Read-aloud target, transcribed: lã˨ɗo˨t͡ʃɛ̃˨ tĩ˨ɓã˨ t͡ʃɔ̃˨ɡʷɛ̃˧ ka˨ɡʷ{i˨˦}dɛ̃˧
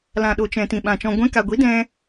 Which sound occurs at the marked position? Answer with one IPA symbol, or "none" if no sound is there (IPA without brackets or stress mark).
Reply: i˨˦